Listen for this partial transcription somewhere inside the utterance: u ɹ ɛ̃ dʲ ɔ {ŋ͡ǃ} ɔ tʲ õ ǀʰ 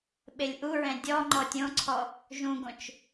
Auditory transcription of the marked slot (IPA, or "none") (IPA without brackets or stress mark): ŋ͡ǃ